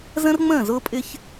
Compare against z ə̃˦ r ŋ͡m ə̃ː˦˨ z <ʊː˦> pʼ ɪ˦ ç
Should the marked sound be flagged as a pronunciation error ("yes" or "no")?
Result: no